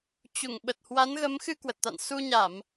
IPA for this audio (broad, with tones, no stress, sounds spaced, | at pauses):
t͡ɕ u˧˩ ŋ ɓ ə˨˩ t̚ h w a˨˦ n ɣ ə˨˦ m x ɨ˧ k w ə˨˩ t̚ t̪ a̰˧˨ n s u˧ ɲ a˧˩˨ m